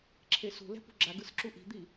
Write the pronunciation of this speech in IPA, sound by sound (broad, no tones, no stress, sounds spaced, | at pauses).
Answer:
ǁʰ e s ṳ l ɛ̤ p ṳ ɡ͡ǁ a ɡ ɯ s ǁ u ʔ i̤ d̪ i